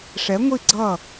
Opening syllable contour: rising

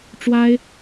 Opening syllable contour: high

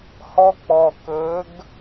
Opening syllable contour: high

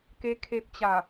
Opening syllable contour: rising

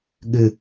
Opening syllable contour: low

